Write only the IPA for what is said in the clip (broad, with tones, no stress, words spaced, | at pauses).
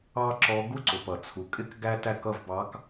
ɑ˥ǁɔ˧˥ ɡu˥ǀʊ˩p ʌ˩t͡sʰu˩ kʼɪ˥kɡæ˥ tæ˥˩kʌ˥˩vbɑ˧˥k